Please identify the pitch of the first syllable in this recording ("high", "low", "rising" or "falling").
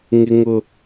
low